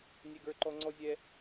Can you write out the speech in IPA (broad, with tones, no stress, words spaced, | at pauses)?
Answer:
nʲɛ˦ɡə˞˦ǃɔ˦ ŋ͡ǀɔ˦zʲɛ˦